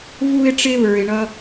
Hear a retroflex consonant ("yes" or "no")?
yes